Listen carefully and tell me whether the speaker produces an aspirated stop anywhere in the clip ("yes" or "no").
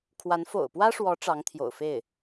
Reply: yes